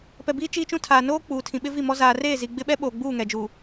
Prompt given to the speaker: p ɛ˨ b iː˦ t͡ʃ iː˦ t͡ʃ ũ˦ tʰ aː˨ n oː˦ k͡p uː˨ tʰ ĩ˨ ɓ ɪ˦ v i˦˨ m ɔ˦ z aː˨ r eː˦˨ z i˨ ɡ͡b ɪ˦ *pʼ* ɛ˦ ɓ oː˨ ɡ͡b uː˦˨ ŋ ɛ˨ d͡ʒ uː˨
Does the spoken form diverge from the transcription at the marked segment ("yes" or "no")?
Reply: yes